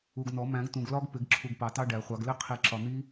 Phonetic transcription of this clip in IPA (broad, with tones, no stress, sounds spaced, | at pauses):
u˨ ɡ n ɔ˨˩˦ m æ̃˨˩˦ ɡ t ũ˨ ɡ l ɒ˦˥ ɡ p ɪ˨˩˦ ɡ ǁʰ u˨ ɡ p ɑ˨˩˦ t ɑ˦˥ ɖ æ˨˩˦ χʷ ɑ˨˩˦ ɡ l ɪ˦˥ qʰ i˨˩˦ ǁ ɒ˨ n̪ i˦˥